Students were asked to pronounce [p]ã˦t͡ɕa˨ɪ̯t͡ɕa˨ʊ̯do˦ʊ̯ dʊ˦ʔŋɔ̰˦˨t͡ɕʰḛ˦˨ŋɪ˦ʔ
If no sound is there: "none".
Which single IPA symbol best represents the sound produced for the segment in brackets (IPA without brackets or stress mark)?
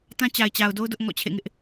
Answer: t